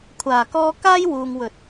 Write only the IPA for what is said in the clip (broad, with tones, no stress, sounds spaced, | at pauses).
kʷʰ aː˨˩ k ɔː˧ k aː˥ j w uː˨ ŋ w ɵ˨˥ t̚